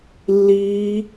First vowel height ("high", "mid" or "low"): high